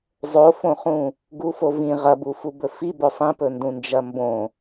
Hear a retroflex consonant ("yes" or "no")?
no